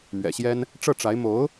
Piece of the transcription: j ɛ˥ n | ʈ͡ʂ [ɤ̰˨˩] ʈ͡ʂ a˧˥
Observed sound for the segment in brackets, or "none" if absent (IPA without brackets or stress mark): ɤ˥˩